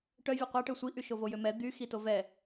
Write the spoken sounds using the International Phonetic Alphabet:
ʈ œ vʲ ɛ qʷ a ʈ ø sʷ i ʔ y ʃ o v o j ø m ɛ d̪ y x i t o v ɛ

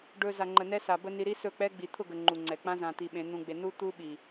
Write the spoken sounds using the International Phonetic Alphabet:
ɖ ɵ˧ z a˨ ŋ͡ǃ ə˨ n ɛ˦ s a˨ b ə˦ n i˧ ɾ i˦ s ɵ˦˨ k͡p ɛ˦ ɡ͡b i˨ t̪ʰ ʊ˦˨ ɡ ə˨ ŋ͡ǃ u˨ ŋ͡ǀ ɛ˨ k͡p ã˦ z ã˧ t̪ i˧ ɓ ẽ˨˦ n̪ ũ˧ ɡ͡b e˧ n u˦ t̪ u˦ ɓ i˨

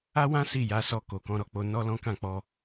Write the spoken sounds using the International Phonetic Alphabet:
a˦ w ã˦ s i˦˨ j a˨˦ s ɔ˧ k o˨ k ɔ̃˨˦ ɾ ɔ˦ k͡p o˧ n ɔ˦ l ɔ̃˦ k ã˦˨ k͡p ɔ˧

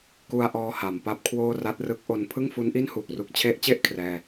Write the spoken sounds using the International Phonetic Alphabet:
k u˧ a̯ ʔ ɔː˧ h a˩˦ m p a˥˩ p̚ kʰ w oː˥˩ r a˦˥ t̚ r ɯ˦˥ k̚ ʔ o˦˥ n pʰ ɯ˥˩ ŋ f u˦˥ n ʔ i˥˩ n h uː˨˩ k̚ r u˦˥ k̚ t͡ɕʰ e˦˥ ʔ t͡ɕ e˥˩ ʔ kʰ r ɛː˥˩

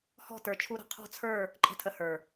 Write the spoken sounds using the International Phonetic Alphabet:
h ɔ̤˦˨ t ə˞˨ t͡ʃʰ u˧ ɾ ə̤˨ qʰ ɔ̤˦˨ t͡sʰ ə˞˦˨ | ǃʼ ə̤˧ tʰ ə˨ h ə˞˨

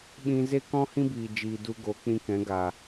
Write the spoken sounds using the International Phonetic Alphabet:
ɓ ĩ˧ z e˦ k ɔ̃˦ h ĩ˦ b iː˨ d͡ʒ iː˨ d u˧ ɡ o˨˦ k͡p ĩ˧ k ɛ̃˨˦ ɡ a˨

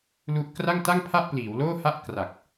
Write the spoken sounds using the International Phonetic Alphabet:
l u˦˥ ʔ k r a˥˩ ŋ t a˥˩ ŋ pʰ a˥˩ ʔ p l iː˩˦ w l oː˥˩ h a˥˩ ʔ k r a˨˩ k̚

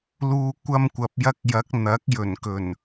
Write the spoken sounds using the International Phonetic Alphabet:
l uː˧ kʷ ɐ˧ m kʷ ɐ˨ p̚ j ɐ˧ k̚ j ɐ˨˥ k̚ n̪ ɐ˨˥ k̚ j ɵ˨˩ n k ɵ˨˩ n

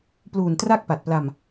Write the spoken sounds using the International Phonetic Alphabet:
p l uː˨˩ n t r a˥˩ k̚ p a˨˩ t̚ p l a˧ m

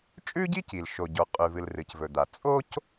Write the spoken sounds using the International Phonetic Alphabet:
t͡ʃʼ ʉ˥ ɟ i˥ c i˩ l ʃ o˩ ɟ o˩ qʼ ʉ˩ v ɨ˩ l r ɨ˩ c v ɵ˩ d̪ a˩ t͡sʼ o˥ c

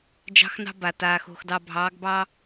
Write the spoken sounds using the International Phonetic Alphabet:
d͡ʒ ɑ̤˦ x n ɑ̤˦ b a˨ t aː˨ x o̤˨ x d ɑ˨ bʱ ɑː˨˦ ɡ b ɑ˦

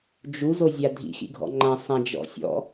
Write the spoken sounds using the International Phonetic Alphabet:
d͡ʒ u z o zʲ a dʱ ḭ x ḭ ɡʱ ɔ̰ ŋ͡ǃ ã sˤ ã d͡ʒ ɔ̰ sʲ ɔ̰

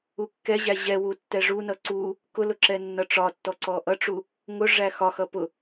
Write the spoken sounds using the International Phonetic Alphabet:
u kː ɛ ʑ æ ʑ ɛ w u tː ɛ ʐ u n ʌ ǀ u | k ʊ l ʊ ǁ ɛ nː ʌ ʈ͡ʂ ɒ tː ɔ ǀ ɔ ʔ ʌ ʈ͡ʂ u | ŋ ʊ ʐ æ x ɒ x ʌ p ʊ

